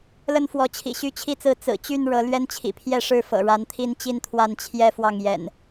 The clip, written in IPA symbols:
l ə˦ n f w ɔ˨˦ t͡ɕʰ ḭ˨˩ ɕ y˦ t͡ɕʰ i˥˨ t͡s ɹ̩˥˨ t͡s ɹ̩˨˩ t͡ɕ y˥˨ n ɻ ɤ˨˦ l ɥ ɛ˦ n t͡ɕʰ ḭ˨˩ pʰ j ɛ˥˨ ʂ ɻ̩˥˨ f ɤ̰˨˩ ɻ a˨˦ n t̪ʰ i˦ n t͡ɕ i˦ n t̪ʰ w a˥˨ n t͡ɕʰ j ɛ˦ f w ɑ˥˨ ŋ j ɛ̰˨˩ n

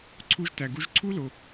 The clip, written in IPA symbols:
ǀʰ u˦ ʒ t æ˨ ɡ u˦ ʒ ǀʰ u˦ l o˨

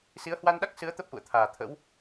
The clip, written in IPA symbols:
s i˨˦ ə̯ h w a˧ n ɗ a˦˥ k̚ s ɨ˨˦ ə̯ t̪ ə˦˥ p̚ ʔ ṵ˧˨ ə̯ t̪ʰ aː˨˩ t̪ʰ ə̰˧˥ w

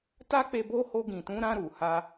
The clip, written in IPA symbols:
t a˦ k͡p e˧ b o˦ h o˧ ɡ ĩ˨ t ũ˨˦ ɾ ã˧ ɾ u˨ h a˧

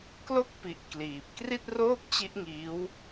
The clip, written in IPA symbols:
k l o˥˩ k̚ p i˨˩ ʔ k l iː˨˩ p̚ k r i˥˩ t̚ r oː˥˩ k̚ t͡ɕ i˦˥ ʔ ŋ iː˦˥ w

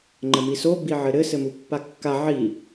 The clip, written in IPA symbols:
ŋ͡ǃ ɘ m i s o b i ʕ ɘ ɾ ɘ s ɘ m u pː a kː a ʕ i

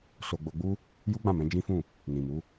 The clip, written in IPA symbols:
s o˧ ɡ͡b o˧ ɡ͡b u˦ | j u˦ ɡ͡b ã˦˨ m ɛ̃˨˦ d͡ʒ ĩ˦ f ũ˦˨ | n ĩ˨ m u˨˦

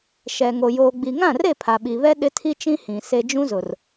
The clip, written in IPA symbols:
ʃ ɛ˨ ŋ o˨ j oː˨ ɡ͡b i˨ ŋ ã˦˨ r e˦˨ pʰ a˨ ɓ i˨ β ɛ˦ ɗ ɪ˦ tʰ i˦ t͡ʃ ĩ˦ h ĩ˨ s e˦ d͡ʒ ũ˦ z ʊ˨ r

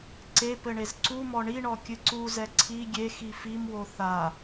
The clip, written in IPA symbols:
ǀ e p ɘ ɳ e z ǀ u m ɔ ɳ i ɳ ɔ kʲ ɨ ǀ u z ɛ ǀʰ i ɡʲ e x i f i m w o θ a

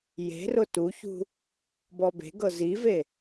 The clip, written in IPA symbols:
j e̤ r ʊ t u ç ṳ | b ɔ b e̤ ɡ ɤ z i v e

